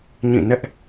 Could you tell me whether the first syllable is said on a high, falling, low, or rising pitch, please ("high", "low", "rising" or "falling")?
falling